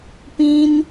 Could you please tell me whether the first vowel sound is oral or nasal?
nasal